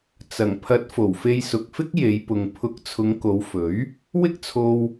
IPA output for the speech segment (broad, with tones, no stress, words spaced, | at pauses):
t͡sɐ˨˩ŋpʰɐ˨˥t̚ fo˨˩wfe˧jsʊ˨k̚fɪ˥k̚ je˨˧jpʊ˨ŋ pʰʊ˨˥k̚t͡sʰʊ˨˧ŋko˨˧wfɵ˨˥ɥ | wɪ˥k̚t͡sʰo˧w